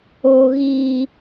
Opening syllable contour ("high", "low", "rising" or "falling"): high